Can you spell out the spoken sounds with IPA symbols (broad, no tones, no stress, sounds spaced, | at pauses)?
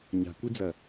ɲ a̤ kʷ i d͡z ɐ